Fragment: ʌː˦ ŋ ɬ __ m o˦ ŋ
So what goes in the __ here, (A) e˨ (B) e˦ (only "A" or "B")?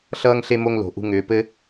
B